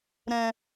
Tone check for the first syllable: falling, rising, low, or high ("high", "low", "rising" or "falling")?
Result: low